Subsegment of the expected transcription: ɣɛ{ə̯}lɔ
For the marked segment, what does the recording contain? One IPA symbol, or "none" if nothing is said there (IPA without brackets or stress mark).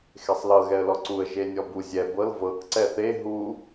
ə̯